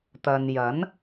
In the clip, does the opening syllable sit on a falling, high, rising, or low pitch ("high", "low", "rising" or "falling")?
low